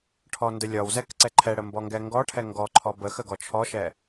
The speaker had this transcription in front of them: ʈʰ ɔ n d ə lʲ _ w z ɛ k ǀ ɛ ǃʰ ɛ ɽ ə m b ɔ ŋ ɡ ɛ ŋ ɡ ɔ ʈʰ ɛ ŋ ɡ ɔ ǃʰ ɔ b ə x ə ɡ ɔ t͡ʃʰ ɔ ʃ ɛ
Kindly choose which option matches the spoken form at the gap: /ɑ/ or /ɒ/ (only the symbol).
ɒ